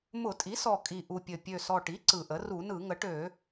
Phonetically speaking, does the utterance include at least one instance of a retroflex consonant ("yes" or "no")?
yes